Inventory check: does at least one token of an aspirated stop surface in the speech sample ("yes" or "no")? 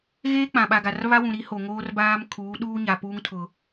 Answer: yes